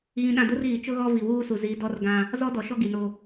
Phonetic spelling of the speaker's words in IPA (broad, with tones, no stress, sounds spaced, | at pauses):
ɣ ĩ˨ ɗ ã˨ d ʊ˦ r ɣ i˨ t͡ʃ ʊ˦ ɣ ɔ˦ v i˨ w uː˦ s u˨ z i˨˦ d ɔ˦ r ɡ ã˦ | z ɔ˦ d ɔ˨ ʃ ɔ˦ ɡ i˨ n o˦